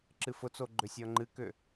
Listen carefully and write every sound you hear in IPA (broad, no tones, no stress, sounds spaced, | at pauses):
ǁ ɨ f ʊ t͡s o ɡ͡ǃ ʏ sʲ ɔ ŋ͡ǃ ɨ k ʏ